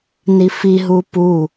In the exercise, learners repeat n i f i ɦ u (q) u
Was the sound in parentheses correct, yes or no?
no